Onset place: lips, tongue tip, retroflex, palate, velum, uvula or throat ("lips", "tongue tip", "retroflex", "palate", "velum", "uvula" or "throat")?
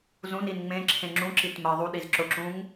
tongue tip